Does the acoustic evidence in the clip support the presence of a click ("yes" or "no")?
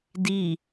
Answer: no